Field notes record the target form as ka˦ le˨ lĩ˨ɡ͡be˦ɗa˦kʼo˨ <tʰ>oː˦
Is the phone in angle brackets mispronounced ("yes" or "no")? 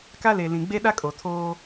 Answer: no